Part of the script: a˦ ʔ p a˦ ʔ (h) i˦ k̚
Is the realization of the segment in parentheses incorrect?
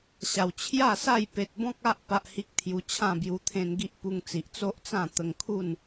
no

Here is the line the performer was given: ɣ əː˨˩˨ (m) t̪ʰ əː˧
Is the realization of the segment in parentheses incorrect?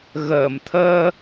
no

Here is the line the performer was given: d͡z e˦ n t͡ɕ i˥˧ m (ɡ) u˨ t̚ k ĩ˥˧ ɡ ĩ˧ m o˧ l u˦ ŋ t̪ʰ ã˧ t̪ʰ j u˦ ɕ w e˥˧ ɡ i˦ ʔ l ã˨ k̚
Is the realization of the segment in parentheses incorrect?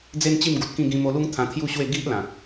no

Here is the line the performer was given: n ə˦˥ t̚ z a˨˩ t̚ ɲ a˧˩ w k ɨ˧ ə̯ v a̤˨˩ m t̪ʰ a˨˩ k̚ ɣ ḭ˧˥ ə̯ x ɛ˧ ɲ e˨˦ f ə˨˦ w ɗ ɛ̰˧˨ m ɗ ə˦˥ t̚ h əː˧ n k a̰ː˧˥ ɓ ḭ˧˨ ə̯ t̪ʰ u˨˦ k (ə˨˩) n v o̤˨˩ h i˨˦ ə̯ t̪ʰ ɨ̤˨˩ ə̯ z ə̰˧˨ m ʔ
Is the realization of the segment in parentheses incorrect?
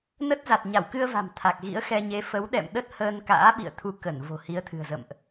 yes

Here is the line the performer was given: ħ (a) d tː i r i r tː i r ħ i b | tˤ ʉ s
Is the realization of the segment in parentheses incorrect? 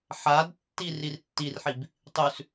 no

